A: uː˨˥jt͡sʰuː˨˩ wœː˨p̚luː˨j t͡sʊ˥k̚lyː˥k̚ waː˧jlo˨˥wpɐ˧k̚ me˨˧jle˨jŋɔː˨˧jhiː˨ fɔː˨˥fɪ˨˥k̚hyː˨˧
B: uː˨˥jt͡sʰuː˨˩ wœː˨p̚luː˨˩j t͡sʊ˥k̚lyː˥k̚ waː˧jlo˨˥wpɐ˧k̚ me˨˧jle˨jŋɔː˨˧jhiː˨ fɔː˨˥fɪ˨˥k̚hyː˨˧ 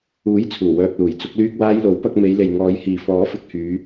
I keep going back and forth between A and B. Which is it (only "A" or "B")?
B